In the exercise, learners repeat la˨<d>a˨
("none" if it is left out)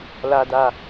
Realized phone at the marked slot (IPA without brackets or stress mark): d